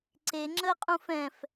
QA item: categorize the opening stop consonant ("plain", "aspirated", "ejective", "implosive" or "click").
click